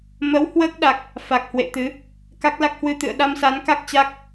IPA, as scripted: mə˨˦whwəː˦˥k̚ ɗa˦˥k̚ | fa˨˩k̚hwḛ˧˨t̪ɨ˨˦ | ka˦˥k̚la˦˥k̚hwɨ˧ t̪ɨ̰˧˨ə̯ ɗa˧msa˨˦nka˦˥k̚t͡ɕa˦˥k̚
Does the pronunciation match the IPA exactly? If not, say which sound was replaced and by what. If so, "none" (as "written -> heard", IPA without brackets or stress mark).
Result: none